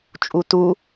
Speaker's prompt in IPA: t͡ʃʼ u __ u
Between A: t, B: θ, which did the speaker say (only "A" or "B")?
A